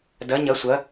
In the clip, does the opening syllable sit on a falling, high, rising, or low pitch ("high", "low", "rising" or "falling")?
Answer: rising